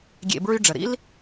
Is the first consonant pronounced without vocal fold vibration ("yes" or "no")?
no